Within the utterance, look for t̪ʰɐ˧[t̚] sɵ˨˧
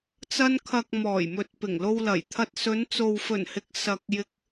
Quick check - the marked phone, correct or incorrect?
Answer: correct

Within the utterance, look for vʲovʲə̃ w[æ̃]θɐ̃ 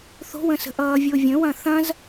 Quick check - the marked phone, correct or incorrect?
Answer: incorrect: ɐ̃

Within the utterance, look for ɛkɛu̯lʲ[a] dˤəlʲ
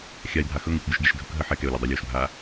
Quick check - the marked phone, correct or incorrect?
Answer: correct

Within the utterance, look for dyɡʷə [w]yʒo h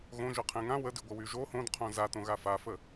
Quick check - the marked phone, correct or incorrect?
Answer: correct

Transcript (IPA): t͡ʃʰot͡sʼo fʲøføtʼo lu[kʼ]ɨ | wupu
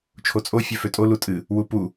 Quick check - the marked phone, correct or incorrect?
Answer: incorrect: tʼ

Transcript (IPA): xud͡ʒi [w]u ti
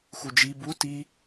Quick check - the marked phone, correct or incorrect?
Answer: incorrect: b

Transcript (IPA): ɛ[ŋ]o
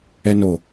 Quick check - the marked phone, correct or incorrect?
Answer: incorrect: n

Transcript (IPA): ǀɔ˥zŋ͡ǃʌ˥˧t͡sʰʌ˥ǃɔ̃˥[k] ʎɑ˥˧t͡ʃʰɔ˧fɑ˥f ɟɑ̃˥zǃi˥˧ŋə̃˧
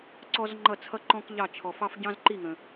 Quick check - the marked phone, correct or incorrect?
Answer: correct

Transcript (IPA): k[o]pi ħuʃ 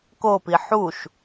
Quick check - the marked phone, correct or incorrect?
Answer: correct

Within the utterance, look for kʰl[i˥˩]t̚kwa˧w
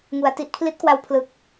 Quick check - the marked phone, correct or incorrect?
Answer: incorrect: i˦˥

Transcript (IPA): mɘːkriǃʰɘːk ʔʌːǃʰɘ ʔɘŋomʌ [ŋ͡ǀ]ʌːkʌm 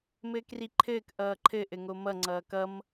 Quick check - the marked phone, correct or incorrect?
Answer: correct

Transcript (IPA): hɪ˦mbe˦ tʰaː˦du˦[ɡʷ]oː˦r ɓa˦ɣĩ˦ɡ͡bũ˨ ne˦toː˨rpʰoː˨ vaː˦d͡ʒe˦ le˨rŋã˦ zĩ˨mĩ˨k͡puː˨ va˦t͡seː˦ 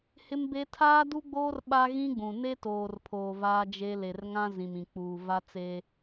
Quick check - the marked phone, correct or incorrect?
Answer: incorrect: ɡ͡b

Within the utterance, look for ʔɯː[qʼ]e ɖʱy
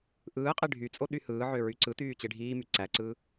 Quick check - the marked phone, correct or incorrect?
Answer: correct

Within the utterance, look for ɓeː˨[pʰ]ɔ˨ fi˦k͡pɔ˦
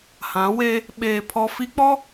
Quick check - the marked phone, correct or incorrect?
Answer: correct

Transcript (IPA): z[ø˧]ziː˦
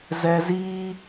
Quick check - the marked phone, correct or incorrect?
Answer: incorrect: ɛ˧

